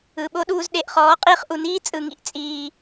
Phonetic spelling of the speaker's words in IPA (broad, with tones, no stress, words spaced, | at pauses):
ɯ˨ɓo˦ɗuː˧z ɗe˨ʔχɔː˨˦ qʼiː˧χʔu˨niː˦ t͡sʼɯ˨ŋḭ˦ʔ t͡sʼiː˧